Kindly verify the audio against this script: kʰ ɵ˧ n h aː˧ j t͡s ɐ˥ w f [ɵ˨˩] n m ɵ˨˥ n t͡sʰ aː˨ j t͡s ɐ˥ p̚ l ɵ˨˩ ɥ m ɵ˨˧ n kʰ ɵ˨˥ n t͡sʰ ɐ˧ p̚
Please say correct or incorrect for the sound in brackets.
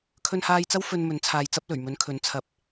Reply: incorrect